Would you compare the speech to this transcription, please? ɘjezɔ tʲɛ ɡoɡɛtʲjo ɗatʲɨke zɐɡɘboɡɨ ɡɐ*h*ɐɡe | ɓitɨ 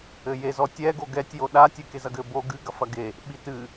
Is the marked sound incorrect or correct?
incorrect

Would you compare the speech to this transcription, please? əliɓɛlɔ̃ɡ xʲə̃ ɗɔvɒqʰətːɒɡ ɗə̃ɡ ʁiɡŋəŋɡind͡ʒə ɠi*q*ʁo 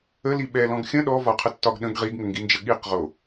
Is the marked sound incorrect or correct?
correct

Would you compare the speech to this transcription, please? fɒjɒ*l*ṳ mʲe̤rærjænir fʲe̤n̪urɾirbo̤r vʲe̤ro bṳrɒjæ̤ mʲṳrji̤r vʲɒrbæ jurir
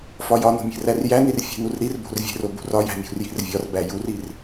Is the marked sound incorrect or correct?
incorrect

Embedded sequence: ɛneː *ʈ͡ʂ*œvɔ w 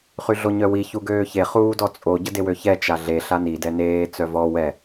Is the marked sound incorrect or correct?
incorrect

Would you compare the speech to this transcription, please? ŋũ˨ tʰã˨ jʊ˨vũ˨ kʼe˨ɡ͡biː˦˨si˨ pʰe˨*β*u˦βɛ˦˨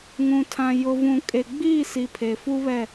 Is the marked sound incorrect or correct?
incorrect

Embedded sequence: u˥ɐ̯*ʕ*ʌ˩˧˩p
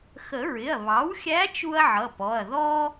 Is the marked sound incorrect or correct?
correct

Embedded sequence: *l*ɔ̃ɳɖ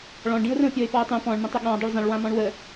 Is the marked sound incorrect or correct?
incorrect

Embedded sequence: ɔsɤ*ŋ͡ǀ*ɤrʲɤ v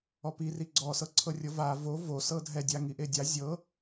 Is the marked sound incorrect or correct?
incorrect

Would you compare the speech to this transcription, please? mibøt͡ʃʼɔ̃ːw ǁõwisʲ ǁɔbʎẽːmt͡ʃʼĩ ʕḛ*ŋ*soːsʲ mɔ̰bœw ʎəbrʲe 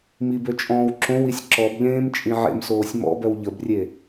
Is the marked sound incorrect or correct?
incorrect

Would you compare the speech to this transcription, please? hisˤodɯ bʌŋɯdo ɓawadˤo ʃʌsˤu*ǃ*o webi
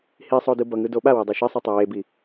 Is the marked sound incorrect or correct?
incorrect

